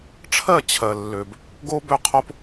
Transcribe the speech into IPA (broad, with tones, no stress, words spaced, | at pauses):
ʈ͡ʂʰɜ˦˨t͡ɕʰɜ˨lːø˨b | ɡo˦bø˦˨qʰo˦p